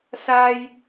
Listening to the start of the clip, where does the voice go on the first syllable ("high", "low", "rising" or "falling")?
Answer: high